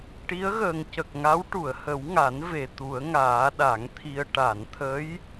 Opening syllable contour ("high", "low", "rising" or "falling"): rising